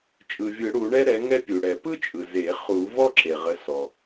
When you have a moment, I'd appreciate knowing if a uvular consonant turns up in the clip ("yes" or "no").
yes